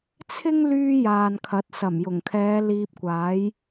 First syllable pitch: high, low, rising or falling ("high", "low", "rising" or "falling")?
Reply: high